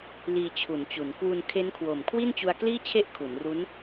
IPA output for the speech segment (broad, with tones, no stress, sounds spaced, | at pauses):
l iː˧ t͡ɕʰ u˩˦ n t͡ɕ u˩˦ n k w u˧ n kʰ e˦˥ n kʰ w o˨˩ m kʰ w i˥˩ n t͡ɕ u˧ a̯ k l iː˥˩ t͡ɕʰ e˦˥ ʔ kʰ u˩˦ n r u˦˥ n